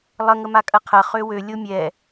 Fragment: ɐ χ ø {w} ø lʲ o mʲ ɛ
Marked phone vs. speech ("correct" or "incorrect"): correct